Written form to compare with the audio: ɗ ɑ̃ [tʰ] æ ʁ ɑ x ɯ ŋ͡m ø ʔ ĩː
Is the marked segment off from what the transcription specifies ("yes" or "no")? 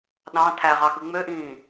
no